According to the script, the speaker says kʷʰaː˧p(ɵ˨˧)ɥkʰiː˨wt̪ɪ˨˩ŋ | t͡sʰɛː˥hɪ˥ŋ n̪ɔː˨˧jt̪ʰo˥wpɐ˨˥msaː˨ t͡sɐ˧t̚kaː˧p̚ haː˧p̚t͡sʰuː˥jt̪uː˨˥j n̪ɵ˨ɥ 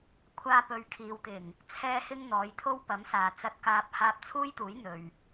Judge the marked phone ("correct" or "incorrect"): correct